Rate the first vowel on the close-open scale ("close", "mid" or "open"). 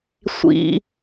close